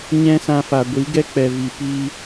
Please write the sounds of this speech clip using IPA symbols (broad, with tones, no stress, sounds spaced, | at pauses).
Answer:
ɲ ɛ̃˦ s ã˧ f a˨ ɡʷ i˨˦ ɡ ɛ˦ k͡p ɛ˨ v i˨ p iː˦